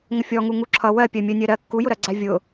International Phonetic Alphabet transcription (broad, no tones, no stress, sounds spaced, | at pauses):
ŋ ə fʲ ɔ ŋ u ŋ u ǁʰ ʌ w ɜ pʲ ɜ mʲ ɜ nʲ ɜ ɾ ɜ kː u j ʊ ɾ ɜ ɡ͡ǀ æ vʲ ʊ